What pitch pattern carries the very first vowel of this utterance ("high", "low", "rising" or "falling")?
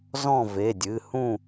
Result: falling